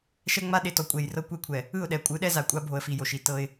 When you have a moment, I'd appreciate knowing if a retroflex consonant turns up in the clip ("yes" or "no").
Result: no